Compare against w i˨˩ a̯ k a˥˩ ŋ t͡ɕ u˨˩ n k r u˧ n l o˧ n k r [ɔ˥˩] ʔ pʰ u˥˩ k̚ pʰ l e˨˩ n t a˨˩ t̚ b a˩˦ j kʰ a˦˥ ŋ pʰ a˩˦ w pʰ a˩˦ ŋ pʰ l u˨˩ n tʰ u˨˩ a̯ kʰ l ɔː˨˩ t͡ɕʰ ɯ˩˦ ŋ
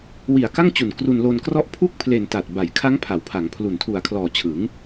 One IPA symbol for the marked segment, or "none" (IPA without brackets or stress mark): ɔ˥˩